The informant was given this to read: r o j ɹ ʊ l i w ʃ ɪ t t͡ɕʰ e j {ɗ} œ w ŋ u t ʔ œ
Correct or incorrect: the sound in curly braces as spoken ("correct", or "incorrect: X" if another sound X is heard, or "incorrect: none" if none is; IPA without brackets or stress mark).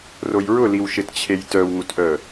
incorrect: t